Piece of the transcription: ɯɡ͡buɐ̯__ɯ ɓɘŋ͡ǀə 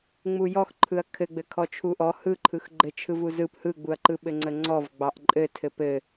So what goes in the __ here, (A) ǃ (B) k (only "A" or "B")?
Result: A